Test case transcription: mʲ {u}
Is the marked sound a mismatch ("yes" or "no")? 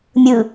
yes